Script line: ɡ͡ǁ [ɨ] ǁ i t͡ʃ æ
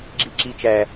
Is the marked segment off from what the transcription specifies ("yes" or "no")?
yes